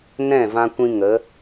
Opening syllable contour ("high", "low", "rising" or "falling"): falling